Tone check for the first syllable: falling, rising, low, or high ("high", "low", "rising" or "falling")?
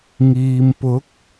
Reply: low